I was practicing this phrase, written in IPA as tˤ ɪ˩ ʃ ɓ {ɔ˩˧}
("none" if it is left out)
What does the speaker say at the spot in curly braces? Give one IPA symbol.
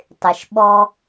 ɔ˧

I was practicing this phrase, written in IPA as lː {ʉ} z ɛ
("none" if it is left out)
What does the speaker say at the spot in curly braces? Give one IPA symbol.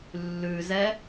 ʉ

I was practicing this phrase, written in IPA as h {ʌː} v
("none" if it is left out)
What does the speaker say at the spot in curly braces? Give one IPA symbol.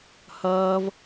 ʌː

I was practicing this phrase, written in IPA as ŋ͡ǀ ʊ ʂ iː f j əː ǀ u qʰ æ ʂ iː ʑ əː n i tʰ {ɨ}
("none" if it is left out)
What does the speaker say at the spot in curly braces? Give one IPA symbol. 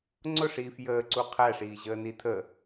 ə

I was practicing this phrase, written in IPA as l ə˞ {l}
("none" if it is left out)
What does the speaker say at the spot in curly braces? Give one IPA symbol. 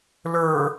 none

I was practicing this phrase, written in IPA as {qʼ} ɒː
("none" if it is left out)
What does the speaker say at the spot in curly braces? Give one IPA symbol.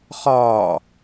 χ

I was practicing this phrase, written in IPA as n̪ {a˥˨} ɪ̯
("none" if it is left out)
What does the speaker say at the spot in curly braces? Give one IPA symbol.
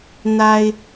a˦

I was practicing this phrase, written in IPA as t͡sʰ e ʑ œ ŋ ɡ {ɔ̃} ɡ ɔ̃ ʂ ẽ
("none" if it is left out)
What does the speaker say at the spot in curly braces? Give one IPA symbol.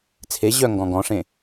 ɔ̃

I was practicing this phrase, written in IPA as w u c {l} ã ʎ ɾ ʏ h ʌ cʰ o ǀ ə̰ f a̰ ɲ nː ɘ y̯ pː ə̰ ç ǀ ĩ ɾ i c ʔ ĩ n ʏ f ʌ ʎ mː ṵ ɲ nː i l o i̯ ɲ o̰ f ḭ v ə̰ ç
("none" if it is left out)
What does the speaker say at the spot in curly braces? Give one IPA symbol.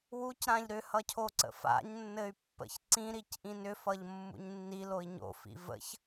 ɾ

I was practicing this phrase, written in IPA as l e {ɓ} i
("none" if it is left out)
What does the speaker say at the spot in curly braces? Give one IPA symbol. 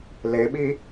ɓ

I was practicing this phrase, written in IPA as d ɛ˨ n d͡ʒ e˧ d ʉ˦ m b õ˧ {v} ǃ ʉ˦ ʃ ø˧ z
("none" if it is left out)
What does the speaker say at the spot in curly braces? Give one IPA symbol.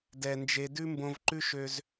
v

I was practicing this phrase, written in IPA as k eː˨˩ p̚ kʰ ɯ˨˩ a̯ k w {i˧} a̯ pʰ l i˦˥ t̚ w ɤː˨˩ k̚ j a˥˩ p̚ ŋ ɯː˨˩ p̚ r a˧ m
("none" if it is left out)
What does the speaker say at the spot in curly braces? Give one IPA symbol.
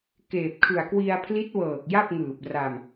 i˧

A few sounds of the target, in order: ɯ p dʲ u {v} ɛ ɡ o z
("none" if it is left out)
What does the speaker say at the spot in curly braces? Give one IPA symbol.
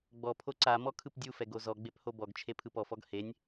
f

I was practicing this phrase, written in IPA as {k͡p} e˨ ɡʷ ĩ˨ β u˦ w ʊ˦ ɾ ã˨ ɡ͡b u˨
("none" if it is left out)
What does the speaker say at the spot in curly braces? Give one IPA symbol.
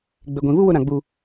ɡ͡b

